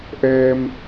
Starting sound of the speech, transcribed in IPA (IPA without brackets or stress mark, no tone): ʔ